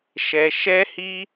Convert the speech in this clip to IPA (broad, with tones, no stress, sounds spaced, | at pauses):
ʃ ɛ˧ ʃ ɛ˦ h i˦